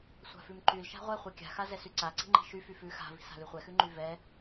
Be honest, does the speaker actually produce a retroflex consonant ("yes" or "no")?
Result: no